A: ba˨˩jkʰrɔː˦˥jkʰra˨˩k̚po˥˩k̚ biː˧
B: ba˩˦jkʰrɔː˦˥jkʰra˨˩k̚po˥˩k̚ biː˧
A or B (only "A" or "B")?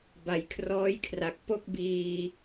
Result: A